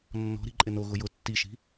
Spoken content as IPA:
nː ɔ̤ ɾ i̤ ǃʼ ɪ n o ɣ ʊ j ʊ tː i ʃ i̤

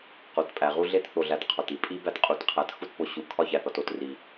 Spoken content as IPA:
q o˨ t pʼ æ˨ ʁ u˦ ɮ e˦ t θ o˨ ɮ æ˨ t qʰ ɒ˨ t i˨ pʼ i˦ b æ˦ t qʼ u˨ t qʰ æ˨ t x u˦ t p o˨ ɕ u˨ kʰ ɒ˦ ç æ˨ θ ɒ˨ t o˦˨ t r i˨

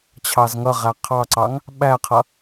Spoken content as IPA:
t͡ɕʰ ɑ z ŋ ʌ ʁ æ qʰ ɑ ǀ ɑ ŋ | ɓ æ qʰ ʌ

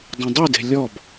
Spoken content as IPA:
dˤ ĩ dˤ y d e̤ lʲ ɔ b

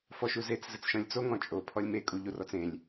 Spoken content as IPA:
f ɔ ʃ u z e t͡s z ɘ t͡s ʃ ɔ̃ lʲ t͡s o ŋ ɔ̃ t͡ʃʼ o pʰ ɔ lʲ m e kʼ u ʎ u r ɔ t͡s ẽ lʲ

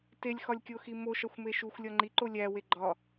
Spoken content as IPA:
t e lʲ x ɒ lʲ kʲ o x i m o ʃ ɒ xʷ m e ʃ u xʷ lʲ ɒ ŋ͡ǃ i ǃ o lʲ æ w e ɡ͡ǃ ɒ

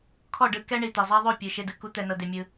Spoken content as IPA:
kʰ ɔ˦˨ ɖ ɯ˧ k ɛ˦ ɳ i˨ t̪ ɛ˨ zˤ a˦ ðˤ o˦˨ pʲ ɯ˨ ʃ e˧ d ɯ˨ k u˦ t̪ ɛ˧ n ɤ˧ d e˧ mʲ ɯ˧

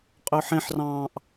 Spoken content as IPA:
qʼ ø ħ ẽ ħ r ɑ̃ː ʔ

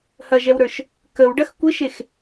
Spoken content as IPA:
h ɐ ʒ ɛ w ɾ ə˞ ʃ | k ə w ɖ ɐ x kʷ ɪ ʃ e x

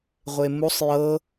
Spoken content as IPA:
ʁʷ e m u sˤ j ɤ

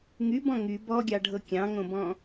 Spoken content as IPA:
ŋ y b ɔ̃ ŋ y b ɔ ɡʲ ɑ ɖʱ ɤ kʲ ɑ̃ ŋ õ b ɔ̃

